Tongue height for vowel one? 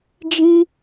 high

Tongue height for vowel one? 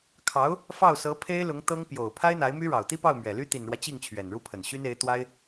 low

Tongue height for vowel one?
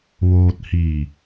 mid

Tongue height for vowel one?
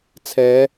mid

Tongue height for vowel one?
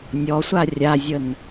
mid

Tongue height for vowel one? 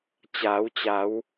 low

